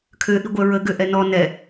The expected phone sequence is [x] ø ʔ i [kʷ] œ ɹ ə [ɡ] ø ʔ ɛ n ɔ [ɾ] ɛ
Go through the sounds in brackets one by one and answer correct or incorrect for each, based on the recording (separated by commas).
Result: incorrect, incorrect, correct, incorrect